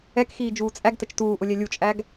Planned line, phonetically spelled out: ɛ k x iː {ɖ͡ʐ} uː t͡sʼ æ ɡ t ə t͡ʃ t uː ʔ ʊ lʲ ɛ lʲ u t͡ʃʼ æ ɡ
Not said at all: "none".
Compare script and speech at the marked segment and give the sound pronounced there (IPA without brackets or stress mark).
d͡ʒ